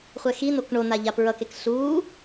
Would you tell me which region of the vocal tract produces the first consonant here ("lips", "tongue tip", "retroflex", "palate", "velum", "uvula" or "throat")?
uvula